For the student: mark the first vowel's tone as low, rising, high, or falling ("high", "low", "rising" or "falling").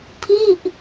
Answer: falling